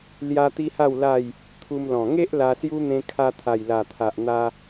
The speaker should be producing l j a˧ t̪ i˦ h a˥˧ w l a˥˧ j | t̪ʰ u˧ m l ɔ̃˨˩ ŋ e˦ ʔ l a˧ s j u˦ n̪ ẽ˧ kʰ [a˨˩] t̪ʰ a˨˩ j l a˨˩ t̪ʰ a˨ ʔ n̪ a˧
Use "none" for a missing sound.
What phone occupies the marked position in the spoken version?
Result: a˧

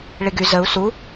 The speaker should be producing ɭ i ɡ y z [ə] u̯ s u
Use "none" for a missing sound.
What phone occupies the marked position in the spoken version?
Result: ə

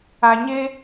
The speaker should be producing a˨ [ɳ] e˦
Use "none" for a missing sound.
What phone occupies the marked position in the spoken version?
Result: ɲ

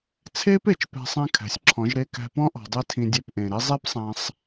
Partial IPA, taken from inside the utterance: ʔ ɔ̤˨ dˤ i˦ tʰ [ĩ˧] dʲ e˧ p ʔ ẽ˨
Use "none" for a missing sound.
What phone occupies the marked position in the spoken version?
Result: ĩ˧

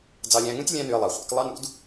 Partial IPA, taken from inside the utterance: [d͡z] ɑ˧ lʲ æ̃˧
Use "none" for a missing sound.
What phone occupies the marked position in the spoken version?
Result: d͡z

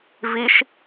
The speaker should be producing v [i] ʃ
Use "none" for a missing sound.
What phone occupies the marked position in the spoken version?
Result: i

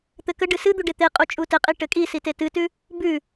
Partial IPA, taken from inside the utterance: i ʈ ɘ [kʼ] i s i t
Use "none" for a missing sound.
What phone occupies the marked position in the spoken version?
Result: kʼ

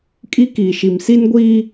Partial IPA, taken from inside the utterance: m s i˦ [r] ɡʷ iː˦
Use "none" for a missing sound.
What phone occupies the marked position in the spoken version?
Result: n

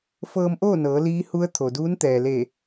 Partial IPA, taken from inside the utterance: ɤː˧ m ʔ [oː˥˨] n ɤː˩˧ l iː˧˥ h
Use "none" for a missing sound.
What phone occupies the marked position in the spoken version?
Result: oː˥˨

